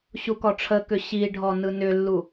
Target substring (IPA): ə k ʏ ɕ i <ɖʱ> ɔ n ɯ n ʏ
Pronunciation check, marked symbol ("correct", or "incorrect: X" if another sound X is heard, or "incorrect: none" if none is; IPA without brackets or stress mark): correct